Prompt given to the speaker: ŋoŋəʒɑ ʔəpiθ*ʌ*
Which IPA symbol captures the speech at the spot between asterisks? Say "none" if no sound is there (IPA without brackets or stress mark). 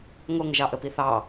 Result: ɑ